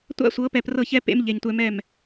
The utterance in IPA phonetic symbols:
tʷ a̰˦ sʷ ɤ˨˦ p ɛ˧ p r ɤ˦˨ ç ɛ˦ p ḛ˦ m ʎ e˨ ɲ tʷ ɛ˧ m ɛ˦˨ m

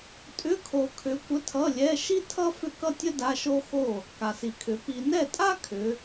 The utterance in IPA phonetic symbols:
tʼ ʏ˧˥˧ kʰ o˨ kʰ ʏ˨˦ kʷ ə˧˥˧ tʰ ʌ˧˥˧ lʲ ɛ˧˥˧ ʃ i˥ tʰ ʌ˥ f ʏ˥˩ k ʌ˥ tʲ ə˥ d a˧˥˧ ʃ o˥ x o˥˩ | k a˨ s i˨ kʰ ʏ˨˦ p i˨ n ɛ˥˩ tʼ a˥ kʰ ʏ˨˦

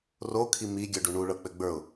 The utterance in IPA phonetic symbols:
r o kʰ i m i ɡʲ œ ɖ u ɳ u ɭ ɤ k͡p ɘ ɡ͡b ə˞ ʊ̯

